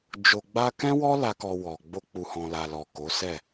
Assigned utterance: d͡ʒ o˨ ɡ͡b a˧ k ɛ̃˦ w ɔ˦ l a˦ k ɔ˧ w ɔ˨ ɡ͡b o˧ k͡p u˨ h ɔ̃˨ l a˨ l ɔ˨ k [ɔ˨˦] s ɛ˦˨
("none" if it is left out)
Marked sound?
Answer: o˨˦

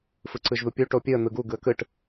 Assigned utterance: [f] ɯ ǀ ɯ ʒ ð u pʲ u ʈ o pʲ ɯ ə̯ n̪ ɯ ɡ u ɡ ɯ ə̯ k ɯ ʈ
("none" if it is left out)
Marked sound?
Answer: f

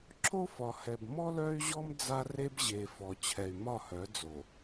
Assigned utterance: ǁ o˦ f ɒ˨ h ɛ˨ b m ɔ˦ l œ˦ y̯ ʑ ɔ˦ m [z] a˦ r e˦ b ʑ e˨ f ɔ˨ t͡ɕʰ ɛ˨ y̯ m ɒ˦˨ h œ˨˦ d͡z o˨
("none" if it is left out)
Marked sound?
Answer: d͡z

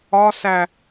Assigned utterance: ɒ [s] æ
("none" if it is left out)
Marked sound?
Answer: s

